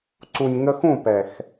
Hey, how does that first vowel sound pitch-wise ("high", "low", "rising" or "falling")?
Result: low